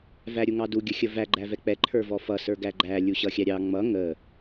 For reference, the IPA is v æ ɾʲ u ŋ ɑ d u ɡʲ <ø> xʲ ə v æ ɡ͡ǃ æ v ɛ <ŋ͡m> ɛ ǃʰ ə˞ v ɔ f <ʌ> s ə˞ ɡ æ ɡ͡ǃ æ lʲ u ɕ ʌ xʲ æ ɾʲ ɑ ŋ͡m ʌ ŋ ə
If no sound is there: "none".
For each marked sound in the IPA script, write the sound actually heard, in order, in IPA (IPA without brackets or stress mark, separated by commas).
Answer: ə, k͡p, ʌ